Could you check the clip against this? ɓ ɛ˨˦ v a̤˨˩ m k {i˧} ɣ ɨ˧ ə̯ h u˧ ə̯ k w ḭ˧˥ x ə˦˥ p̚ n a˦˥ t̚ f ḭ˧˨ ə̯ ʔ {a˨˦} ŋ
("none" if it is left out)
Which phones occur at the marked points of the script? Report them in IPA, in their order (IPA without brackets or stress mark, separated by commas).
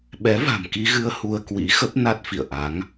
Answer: i˧, a˨˦